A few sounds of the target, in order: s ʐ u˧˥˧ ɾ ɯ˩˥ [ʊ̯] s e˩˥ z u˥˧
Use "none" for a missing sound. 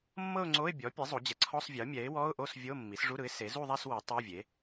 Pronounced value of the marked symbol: ɪ̯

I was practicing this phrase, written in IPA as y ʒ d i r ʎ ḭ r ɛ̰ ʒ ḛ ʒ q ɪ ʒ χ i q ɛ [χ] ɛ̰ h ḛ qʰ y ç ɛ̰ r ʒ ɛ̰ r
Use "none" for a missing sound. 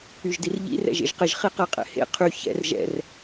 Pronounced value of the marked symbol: qʼ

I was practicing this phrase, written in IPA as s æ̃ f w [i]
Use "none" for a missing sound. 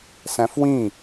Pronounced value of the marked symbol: ĩ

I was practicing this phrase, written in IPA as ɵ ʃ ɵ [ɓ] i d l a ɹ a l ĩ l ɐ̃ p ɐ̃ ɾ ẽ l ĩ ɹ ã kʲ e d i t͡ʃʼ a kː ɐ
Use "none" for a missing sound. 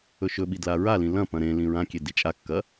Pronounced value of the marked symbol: ɓ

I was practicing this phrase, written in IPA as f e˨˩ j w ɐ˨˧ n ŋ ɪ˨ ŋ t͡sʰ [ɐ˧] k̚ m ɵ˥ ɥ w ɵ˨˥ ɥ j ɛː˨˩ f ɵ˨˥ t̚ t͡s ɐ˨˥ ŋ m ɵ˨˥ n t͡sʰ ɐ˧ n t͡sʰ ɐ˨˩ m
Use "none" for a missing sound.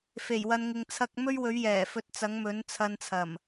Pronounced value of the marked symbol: ɐ˧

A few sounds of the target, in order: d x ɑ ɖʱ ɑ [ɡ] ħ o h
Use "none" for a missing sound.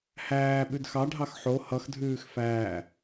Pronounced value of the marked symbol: x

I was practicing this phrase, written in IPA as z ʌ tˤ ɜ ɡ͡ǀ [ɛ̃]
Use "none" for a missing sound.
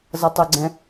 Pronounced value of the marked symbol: ɛ̃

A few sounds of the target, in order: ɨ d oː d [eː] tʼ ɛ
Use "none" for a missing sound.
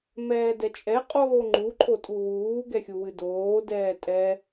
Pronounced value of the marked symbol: ɛː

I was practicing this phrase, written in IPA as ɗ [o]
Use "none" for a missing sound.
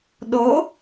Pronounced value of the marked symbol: o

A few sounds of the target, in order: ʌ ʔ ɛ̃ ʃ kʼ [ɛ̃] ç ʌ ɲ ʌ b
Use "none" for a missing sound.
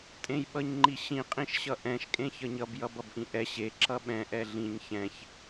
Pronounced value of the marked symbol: ẽ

